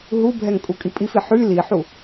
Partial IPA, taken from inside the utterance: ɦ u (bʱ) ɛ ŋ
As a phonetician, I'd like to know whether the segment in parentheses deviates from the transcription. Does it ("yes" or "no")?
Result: no